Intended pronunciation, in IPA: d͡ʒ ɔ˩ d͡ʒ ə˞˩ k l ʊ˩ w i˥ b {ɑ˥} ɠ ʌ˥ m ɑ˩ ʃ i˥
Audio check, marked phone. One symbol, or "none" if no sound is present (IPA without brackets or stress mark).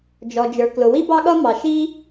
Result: ɑ˥